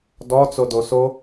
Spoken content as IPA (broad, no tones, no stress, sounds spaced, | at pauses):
d ɔ t͡s o d o s o